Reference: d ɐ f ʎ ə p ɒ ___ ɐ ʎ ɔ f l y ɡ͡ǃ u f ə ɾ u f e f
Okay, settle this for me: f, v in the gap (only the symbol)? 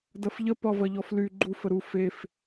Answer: v